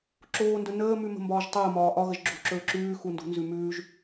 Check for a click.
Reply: present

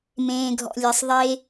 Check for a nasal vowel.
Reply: present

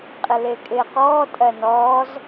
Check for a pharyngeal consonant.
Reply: absent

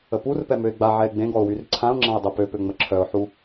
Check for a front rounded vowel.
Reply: present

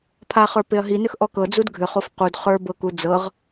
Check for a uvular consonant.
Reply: present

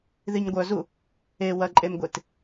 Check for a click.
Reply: present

